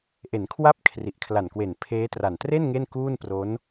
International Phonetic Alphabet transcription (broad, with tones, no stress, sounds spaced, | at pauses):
ʔ e˩˦ n kʰ w a˦˥ p̚ kʰ r i˨˩ ʔ kʰ l a˨˩ n k w e˨˩ n pʰ eː˦˥ t r a˨˩ n t r e˥˩ n ŋ e˥˩ n k uː˥˩ n p r o˦˥ n